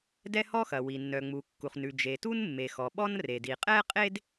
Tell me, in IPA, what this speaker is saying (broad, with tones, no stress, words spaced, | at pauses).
dɛ˥hɔ˥xɐ˩wi˩ nːœ˩ŋ͡mu˩kːu˩χnʉ˩ d͡ʒe˩tu˥nmːe˩ xɔ˩ɓɔ˥nre˩ di˩qʼɛ˥qʼe˥d